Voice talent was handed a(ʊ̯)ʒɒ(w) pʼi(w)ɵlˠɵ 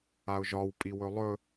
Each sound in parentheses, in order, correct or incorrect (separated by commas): correct, correct, correct